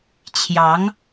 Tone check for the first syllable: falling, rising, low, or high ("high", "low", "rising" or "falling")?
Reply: rising